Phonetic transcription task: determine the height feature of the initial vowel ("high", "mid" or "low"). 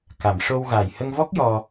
low